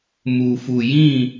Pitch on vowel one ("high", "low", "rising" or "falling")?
low